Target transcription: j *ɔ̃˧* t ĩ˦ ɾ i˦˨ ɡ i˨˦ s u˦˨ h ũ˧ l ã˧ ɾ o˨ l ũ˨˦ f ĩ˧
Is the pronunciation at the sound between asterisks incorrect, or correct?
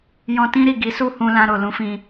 correct